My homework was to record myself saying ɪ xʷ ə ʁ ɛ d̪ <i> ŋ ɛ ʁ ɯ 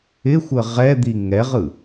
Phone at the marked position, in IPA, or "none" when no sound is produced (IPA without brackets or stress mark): i